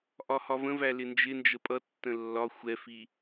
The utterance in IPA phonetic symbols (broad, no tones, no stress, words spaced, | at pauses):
ʔɒhɒvə̃væ lɪnd͡ʒɪnd͡ʒə pʼʌ tːə̃lːɒ xʷɛfi